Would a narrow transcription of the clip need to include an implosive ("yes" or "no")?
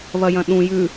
yes